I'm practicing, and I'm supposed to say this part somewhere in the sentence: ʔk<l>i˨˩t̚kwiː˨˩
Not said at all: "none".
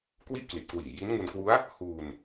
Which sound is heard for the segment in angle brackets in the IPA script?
l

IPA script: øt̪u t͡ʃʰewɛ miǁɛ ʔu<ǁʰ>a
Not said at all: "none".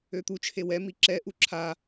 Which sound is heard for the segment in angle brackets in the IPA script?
ǁʰ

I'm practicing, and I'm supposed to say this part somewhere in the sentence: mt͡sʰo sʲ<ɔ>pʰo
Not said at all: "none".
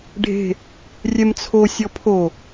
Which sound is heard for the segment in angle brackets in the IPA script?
ɔ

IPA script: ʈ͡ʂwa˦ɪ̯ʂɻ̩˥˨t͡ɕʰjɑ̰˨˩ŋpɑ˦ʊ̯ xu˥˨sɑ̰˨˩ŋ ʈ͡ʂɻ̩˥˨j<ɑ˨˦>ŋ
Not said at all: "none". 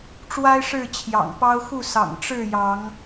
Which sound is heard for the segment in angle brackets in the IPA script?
ɑ˨˦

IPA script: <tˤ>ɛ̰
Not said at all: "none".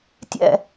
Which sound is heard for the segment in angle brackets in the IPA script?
tʲ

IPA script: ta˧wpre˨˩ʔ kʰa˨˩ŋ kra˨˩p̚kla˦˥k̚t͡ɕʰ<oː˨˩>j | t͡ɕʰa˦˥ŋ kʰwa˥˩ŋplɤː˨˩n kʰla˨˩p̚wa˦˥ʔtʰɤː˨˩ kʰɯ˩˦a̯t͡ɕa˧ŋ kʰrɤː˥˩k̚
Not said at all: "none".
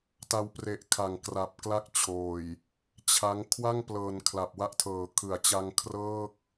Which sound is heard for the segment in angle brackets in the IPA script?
oː˨˩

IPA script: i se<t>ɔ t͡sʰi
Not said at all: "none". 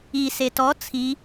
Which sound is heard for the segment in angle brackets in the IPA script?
t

